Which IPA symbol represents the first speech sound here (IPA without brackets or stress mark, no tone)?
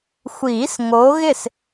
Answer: xʷ